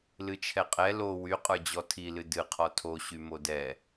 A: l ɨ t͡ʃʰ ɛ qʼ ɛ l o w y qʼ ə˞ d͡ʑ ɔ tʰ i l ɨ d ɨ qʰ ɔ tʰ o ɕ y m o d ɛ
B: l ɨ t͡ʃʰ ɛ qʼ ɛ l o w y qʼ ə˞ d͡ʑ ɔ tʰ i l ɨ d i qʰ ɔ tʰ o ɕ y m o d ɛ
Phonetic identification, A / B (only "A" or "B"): A